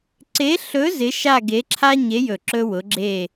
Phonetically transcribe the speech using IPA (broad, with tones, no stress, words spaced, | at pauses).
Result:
ǀe˧˥ɬɵ˧˥ zɪ˧˥ʃa˥˧ɡe˧˥ǁʰa˥ ɲe˧˥jɵ˧˩ ǁɵ˥wʊ˧˥ɡ͡ǁe˥˧